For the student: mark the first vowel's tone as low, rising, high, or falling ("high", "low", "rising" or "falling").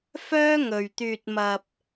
high